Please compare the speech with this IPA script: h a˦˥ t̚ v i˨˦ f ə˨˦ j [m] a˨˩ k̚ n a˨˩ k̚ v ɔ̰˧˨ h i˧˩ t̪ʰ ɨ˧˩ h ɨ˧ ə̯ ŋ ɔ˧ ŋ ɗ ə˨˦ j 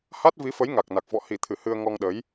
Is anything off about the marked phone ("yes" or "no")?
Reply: yes